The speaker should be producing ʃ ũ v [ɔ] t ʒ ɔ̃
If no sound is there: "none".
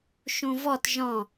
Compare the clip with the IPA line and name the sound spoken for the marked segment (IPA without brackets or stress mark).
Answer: ɔ